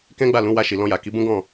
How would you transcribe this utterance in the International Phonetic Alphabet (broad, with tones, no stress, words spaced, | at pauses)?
kɛ̃˦ɡ͡ba˦˨lũ˨˦ wa˧ʃi˨ lɔ̃˧ja˨ki˨˦ bũ˦ɡɔ̃˦˨